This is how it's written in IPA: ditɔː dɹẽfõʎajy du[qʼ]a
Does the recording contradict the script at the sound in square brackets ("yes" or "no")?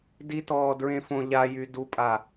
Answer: yes